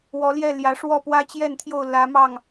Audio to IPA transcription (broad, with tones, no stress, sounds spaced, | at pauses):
w ɔ˨˦ l j ɛ˥˨ l j ä˨˦ ʂ w ɔ˥˨ p w ä˦ t͡ɕ j ɛ˥˨ n t̪ʰ j o˥˨ ʊ̯ l ä˨˦ m ɑ˥˨ ŋ